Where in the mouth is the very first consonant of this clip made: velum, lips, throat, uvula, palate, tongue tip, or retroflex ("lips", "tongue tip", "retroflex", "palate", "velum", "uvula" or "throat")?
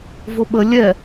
lips